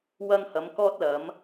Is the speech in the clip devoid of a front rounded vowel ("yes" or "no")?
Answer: yes